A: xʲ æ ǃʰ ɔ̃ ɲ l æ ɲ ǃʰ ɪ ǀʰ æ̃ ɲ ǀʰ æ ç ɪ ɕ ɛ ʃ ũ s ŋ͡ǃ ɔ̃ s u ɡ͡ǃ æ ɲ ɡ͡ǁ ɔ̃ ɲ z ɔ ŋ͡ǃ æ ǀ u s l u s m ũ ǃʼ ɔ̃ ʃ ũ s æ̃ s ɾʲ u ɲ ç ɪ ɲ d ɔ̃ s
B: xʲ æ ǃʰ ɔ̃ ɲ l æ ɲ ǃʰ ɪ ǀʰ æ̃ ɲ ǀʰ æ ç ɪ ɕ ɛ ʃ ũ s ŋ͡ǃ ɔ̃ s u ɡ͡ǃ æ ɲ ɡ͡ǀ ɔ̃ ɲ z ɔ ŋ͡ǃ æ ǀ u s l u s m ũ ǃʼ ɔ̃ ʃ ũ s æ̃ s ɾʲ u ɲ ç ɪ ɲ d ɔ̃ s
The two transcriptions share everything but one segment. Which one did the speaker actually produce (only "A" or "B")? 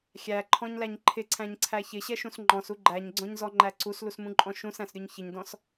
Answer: B